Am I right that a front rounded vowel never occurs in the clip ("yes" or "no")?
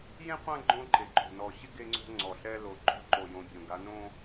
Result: yes